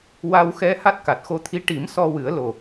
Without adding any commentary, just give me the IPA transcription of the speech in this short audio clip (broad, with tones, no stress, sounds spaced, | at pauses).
w a˧ w x ɛ˧˥ h a˦˥ t̚ k a˨˩ t̚ x o˧ t̪ʰ i˧˥ ʈ i˨˩˦ m s ɔ˧ w ɨ˨˩˦ ə̯ l o˨˩